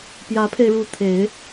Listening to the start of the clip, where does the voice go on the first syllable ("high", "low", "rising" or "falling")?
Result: rising